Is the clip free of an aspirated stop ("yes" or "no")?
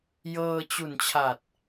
no